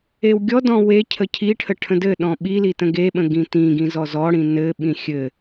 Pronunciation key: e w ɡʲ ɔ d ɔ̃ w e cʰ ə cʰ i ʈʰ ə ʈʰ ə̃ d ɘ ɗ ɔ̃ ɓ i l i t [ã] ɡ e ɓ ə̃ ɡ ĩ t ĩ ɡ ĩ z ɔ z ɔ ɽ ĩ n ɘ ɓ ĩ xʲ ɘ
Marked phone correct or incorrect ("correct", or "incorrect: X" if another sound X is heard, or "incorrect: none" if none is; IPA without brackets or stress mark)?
incorrect: ə̃